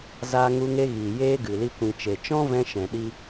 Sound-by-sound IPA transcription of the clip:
z aː˧ ŋ u˧ ŋ e˧ ɣ iː˨ j eː˧ ɡ ɨ˨ l i˧ kʷ ĩ˨ t͡ʃ e˨ t͡ʃ ɔ̃˦ v ɛ̃˧ ʃ ɛ̃˨ ɗ i˧

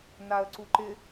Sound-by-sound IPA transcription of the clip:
n a ə̯ ǀ u ǃ ɪ

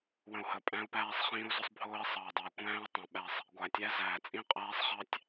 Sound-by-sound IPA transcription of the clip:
w ə̃˨ u̯ h ə˨ pʼ æ̃˦ u̯ p æː˦ sˤ χ ĩː˦ u̯ z ʊ˦ sˤ bʱ ʊː˦ i̯ sˤ ɑ˨ i̯ dˤ ɑ˨ i̯ kʷ æ̃ː˦ u̯ tˤ ə̃˨ ɓ æ˦˨ sˤ | ɡʷ æ˨ tʲ æ˦ z æː˨ t͡sʼ ĩ˦ qʼ æː˦ sˤ χ ɑ˦ tʲ

